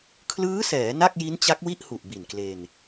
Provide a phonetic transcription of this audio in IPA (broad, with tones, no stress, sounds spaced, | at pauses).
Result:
kʰ l ɯː˦˥ s ɛː˩˦ n a˥˩ k̚ j i˦˥ n t͡ɕ a˦˥ k̚ w i˥˩ ʔ h u˨˩ ʔ b i˨˩ n k l e˧ n